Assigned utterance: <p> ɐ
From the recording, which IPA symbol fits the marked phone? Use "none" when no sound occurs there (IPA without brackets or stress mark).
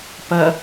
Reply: p